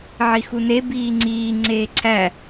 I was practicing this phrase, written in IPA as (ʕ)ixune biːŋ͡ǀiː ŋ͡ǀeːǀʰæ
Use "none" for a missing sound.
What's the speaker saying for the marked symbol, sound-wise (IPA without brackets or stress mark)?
ʕ